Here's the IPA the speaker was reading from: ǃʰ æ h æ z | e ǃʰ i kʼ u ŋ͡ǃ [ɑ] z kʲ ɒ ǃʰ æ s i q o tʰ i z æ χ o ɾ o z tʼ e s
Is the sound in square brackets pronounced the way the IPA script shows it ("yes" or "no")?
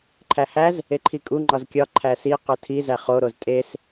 no